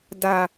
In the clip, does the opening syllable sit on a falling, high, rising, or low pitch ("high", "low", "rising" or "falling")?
low